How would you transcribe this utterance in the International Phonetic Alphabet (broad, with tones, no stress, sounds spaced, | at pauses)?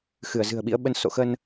x ɨ˧˩ ə̯ z ɨ̤˨˩ ə̯ ɓ ḭ˧˥ ə̯ ɓ ə˧ n s o̰˧˨ x ə˧ n